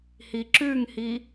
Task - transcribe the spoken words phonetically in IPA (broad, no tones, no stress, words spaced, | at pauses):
hiǁʉŋhi